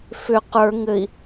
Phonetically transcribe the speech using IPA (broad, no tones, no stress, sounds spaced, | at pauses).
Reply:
f ʏ q ə˞ ŋ ɘ i̯